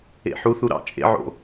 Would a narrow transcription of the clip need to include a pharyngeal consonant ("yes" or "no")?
yes